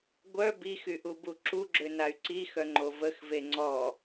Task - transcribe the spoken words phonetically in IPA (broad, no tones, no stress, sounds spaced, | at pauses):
ɡʷ œ b i x y ʔ u b u ǁ u ɡ͡ǁ ø n a y̯ ǀ i x œ ŋ͡ǃ o v ə x v e ŋ͡ǀ ɔ